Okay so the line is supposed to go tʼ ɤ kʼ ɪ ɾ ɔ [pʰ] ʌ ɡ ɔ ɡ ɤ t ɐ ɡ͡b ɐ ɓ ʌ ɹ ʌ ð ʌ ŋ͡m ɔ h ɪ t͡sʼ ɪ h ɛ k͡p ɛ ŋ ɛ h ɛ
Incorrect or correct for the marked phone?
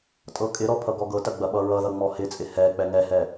correct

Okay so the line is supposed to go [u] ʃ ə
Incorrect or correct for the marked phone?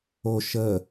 incorrect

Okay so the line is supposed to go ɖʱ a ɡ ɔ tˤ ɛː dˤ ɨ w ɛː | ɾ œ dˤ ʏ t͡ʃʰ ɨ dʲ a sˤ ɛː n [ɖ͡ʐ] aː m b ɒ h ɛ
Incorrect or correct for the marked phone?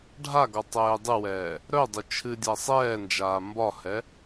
incorrect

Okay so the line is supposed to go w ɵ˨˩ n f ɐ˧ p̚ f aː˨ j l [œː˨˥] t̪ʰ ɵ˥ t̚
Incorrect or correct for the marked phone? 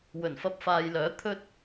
correct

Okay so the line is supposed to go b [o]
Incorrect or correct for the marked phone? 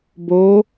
correct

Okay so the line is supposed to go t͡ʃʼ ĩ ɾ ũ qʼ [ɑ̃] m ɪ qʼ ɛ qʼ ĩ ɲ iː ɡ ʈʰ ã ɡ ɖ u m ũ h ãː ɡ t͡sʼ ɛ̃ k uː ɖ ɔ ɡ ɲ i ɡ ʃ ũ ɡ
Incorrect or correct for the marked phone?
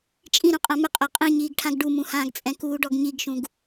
incorrect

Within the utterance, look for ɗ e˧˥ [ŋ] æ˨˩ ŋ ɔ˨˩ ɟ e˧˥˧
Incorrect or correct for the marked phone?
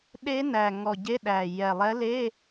incorrect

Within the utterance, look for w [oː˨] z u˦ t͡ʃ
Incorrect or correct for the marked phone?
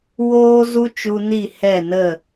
incorrect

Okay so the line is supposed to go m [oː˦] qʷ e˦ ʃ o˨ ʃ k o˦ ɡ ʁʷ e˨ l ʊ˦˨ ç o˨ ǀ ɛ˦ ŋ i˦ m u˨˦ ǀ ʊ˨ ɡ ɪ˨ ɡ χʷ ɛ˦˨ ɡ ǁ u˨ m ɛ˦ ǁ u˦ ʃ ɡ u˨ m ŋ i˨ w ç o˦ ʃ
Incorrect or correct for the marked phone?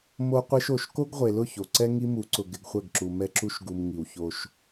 incorrect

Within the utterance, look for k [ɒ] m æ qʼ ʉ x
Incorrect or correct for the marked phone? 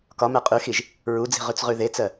correct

